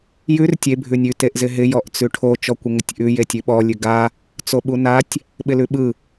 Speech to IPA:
jʉr tʲe bʱʉnʲʉ teʔzɪɦɪ jɔʔt͡sʉʈʰo t͡ʃɔkʷɪŋɪtʲʔʉ jetʲʉɓɔ lʲʉɡa | t͡soɓunatʲ | ɓɪlʉɓɯ

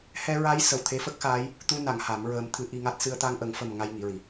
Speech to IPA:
hɛ˧ɹa˧˥j sə˨˩w t̪ʰe˧˥fə˦˥k̚xaː˧˥j | t̪u˧na˨˩˨ŋ ha˨˩˦mɹəː˧˥mt̪ʰɨ˧˥ ʔi˧ŋa˦˥t̚ sɨ˧ə̯t̪a˧ŋʔə˨˩˦ŋfə˨˩m ŋa˧jŋi˨˩˨ɹi˨˩˨

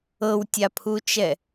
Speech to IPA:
ɤwtʲapʰut͡ʃɛ

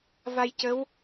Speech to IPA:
va˧jcə˧˥w

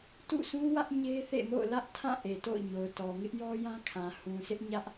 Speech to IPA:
tṵ˦˨sʰũ˦wä˦ʔ ɲe˦θḛ˦˨ mo̰˦˨ʊ̯lä˦ʔtʰã˦˨ʔe˨ to̰˦˨ʊ̯ɲo˨ʊ̯tɔ˨ ŋɪ˦ʔjɔ˦jã˦ kʰã˨ hũ˨sʰɪ˦ʔɲä˦ʔ

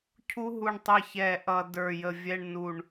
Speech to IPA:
cʰu˥ɦu˦˨ɳtˤɪ˦˨ çɛ˦˨ʔʌ˦˨ də˞˦˨jə˦˨vʲɛ˥ɳ nu˦˨ɳ

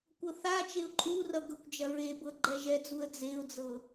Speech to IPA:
kʷɤθat͡ʃeʊ̯ ǃʼurʌ ɡɤkʷd͡ʒɐɹebɤ ɡ͡ǃɛʒɛd͡zuə̯ d͡zeʊ̯d͡zɤ

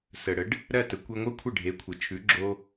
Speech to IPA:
sə˩ɽə˩˥ɖ | ɾɜ˥˩tə˩kʷe˧ŋʷɜ˥ kʷʰə˥˩ɖʱe˩˥kʷʰɪ˩t͡ʃʰʉ˩˥ ɡ͡ǁo˧

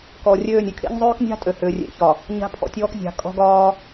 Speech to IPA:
kɔ˨rʲøː˦˨nʲ ʏ˨˦kʰḛ˦ɲzˤøː˦knʲa̤˦ tʼø˨hʏː˨rʲḛ˨çɒ˨ | ɲa̤˦pʰɔ̰˨tʲɔː˦kzʲa̤˨ kʼɔ̤˦ɡɒː˦

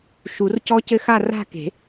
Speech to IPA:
ʃu˨˩˦rcɔ˦˥cɘ˦˥xa˥˧ ra̤˥˧ke̤˨˩˦

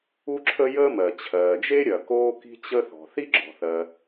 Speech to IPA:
u˥ǁʰə˥jəː˥ mɜ˩t͡ɕʰɜː˩d͡ʒe˥ ɾʲɐ˩koː˥ki̤˥t͡ɕə˥ θɔ̤˩θi˥ɡ͡ǁɔ̤˩θɜ˩

